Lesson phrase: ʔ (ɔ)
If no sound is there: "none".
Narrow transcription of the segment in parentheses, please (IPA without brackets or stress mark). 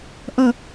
ʌ